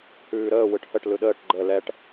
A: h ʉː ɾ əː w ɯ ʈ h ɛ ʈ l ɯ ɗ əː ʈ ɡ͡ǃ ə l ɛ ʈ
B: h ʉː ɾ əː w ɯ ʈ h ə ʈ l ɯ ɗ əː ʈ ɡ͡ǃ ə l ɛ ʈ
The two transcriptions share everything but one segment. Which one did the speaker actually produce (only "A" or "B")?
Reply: B